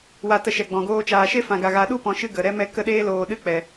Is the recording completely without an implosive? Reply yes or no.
no